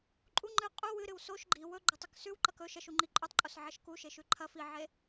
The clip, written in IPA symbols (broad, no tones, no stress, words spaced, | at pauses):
ǃʼu ŋ͡ǃɨ qʼu wɨɾɨw soʃ ɡ͡ǃi wɵ ɡ͡ǃɐtˤʉksʉwǃɐk ɵ ʃɐʃu ŋ͡ǃiǃʼʉtˤǃʼos ʕɐʃku ʃeʃʉǃʰɐ fiʕe